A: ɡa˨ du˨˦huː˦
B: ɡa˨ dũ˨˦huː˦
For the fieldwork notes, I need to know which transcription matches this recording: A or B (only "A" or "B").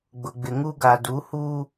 A